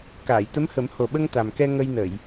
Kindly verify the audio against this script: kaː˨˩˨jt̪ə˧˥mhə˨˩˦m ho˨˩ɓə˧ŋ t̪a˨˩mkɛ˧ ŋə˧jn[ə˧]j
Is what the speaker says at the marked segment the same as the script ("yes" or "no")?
no